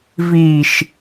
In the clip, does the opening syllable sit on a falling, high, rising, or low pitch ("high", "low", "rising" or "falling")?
low